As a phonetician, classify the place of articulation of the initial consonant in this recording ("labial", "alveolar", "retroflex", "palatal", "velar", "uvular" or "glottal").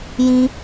palatal